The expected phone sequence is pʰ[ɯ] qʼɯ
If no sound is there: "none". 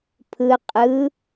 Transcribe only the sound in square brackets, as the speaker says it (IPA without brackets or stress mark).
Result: ɯ